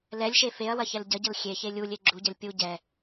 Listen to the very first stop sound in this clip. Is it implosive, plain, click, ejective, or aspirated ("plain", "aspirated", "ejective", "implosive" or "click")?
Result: plain